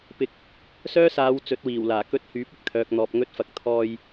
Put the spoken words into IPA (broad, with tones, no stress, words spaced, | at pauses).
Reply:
pɪ˨k̚ | sœː˥saː˨˧w t͡sɵ˨˥t̚wiː˨˩wlaː˨˩ kɵ˧t̚hyː˨˥p̚ ɪ˧k̚t̪ʰœː˨k̚n̪ɔː˨p̚ ŋɵ˧t̚fɐ˨k̚ t̪ʰɔː˧j